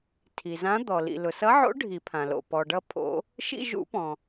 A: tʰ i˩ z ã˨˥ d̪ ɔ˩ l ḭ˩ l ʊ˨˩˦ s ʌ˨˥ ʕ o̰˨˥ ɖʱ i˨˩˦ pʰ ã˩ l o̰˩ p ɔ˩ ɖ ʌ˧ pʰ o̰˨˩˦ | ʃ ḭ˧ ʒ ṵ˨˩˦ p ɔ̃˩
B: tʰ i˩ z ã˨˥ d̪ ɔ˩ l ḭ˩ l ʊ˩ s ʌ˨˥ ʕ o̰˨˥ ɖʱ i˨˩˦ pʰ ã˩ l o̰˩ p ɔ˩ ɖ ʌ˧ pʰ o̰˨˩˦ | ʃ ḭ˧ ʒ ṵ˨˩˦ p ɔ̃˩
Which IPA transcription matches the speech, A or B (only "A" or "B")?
B